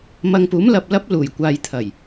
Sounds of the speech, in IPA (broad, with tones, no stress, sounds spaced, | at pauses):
m ɐ˧ ŋ p uː˨˥ m l ɐ˨ p̚ l ɐ˨˥ p̚ l uː˨˩ j kʷ aː˨ j t̪ʰ ɐ˨˩ j